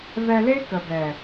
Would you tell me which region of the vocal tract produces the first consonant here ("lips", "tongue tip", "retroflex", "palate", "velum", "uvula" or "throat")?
lips